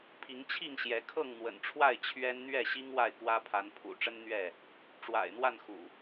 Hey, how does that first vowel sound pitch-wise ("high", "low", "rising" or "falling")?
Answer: rising